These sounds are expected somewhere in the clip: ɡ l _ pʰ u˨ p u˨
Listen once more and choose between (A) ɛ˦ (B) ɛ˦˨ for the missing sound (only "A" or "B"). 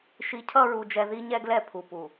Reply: B